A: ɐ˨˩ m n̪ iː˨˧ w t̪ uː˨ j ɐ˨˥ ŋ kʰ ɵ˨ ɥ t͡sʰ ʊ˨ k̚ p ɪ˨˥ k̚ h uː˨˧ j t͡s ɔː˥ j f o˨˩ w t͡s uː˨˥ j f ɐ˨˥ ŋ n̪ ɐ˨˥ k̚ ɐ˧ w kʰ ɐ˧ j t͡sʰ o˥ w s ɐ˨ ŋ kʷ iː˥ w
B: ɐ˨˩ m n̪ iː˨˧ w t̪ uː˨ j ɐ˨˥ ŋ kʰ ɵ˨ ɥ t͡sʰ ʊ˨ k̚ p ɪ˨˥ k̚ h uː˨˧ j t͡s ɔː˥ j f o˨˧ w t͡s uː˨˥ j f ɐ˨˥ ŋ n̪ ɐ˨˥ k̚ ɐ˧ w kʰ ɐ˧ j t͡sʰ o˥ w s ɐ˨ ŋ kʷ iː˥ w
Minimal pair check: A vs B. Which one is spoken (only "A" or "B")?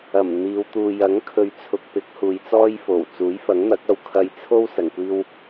A